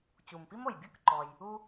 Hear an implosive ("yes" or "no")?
no